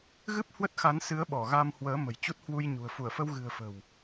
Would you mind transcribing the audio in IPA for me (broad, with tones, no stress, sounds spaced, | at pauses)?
ɣ ɨ˦˥ p̚ h w ə˦˥ t̚ x a˨˦ n s ɨ˨˦ ə̯ ɓ ɔ˧˩ ɣ a˧ m h w əː˨˦ m ə̤˨˩ j t͡ɕ u˦˥ t̚ h w u˧ j ɲ ṳ˨˩ ə̯ f u˧˩ ə̯ f ə˧ w ɣ ɨ̤˨˩ ə̯ f ə̤˨˩ w